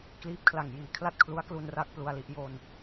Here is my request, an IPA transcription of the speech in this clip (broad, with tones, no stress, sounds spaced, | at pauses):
k l iː˦˥ p̚ kʰ l a˨˩ ŋ j iː˨˩ kʰ l a˥˩ t̚ kʰ l u˦˥ a̯ k l u˧ n r a˥˩ k̚ p l u˧ a̯ l i˦˥ ʔ j o˧ n